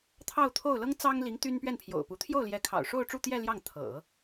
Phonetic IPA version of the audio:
t̪ʰ ɑ˥˧ ʊ̯ t̪ʰ o˥˩ ʊ̯ l ɤ˥ ŋ t͡s ɑ˥ ŋ l i˧˥ ŋ t̪ y˥ n p ɥ ɛ˥˩ n pʰ j o̰˨˩ ʊ̯ p u˧˥ t̪ʰ j o˥˩ ʊ̯ l j ɛ˧˥ kʰ ɑ̰˨˩ ʊ̯ ʂ o˥˧ ʊ̯ ʈ͡ʂ u˥˧ t̪ j ɛ˥˧ l j ɑ˥˩ ŋ t̪ʰ ɤ̰˨˩˦

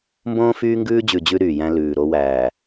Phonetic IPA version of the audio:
m b õː˦ f yː˦ ŋ ɡ ʉː˦ d͡ʑ ʉ˨ d͡ʑ ʉ˦ ɾ yː˨ j æ̃˦ l ʉː˨ ɾ o˦ w æː˨

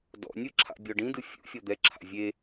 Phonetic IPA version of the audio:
d ɔ̰ nʲ ɯ ǁʰ a̰ bʲ ɔ ɖ ĩ d ɯ fʲ ṵ fʲ ɔ d̪ ɛ ǁʰ a̰ vʲ e

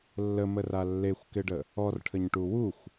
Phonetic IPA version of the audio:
lː ə m ə r a lː e xʷ k ɪ ɖ ə | ɔ r ʈʰ ə ɲ ʈ u w u xʷ

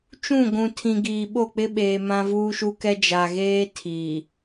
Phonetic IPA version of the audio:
t͡ʃ ũ˦˨ ɡʷ ũ˨ tʰ ĩ˨ ɡ iː˨ ɓ o˦˨ k͡p ɪ˦ ɓ eː˨ m ã˦ v uː˦ ʃ u˦ k ɛ˦ d͡ʒ a˨ ɣ eː˦ tʰ iː˨

